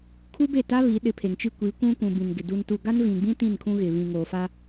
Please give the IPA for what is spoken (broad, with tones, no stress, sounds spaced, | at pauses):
kʰ u˦ b e˦˨ t a˦ β i˨˦ ɗ ɪ˨˦ pʰ e˨ ŋ t͡ʃ i˦ kʷ i˨˦ kʷ ũ˦ kʷ ũ˨ b ĩ˨ n ɡ ɪ˨ d u˨ n t u˨ ɡ a˦ n v ĩ˨ ɡ͡b ĩ˦ t ĩ˦˨ n kʰ ũ˦ ɣ ɪ˨ β ĩ˨ ŋ o˨ f a˦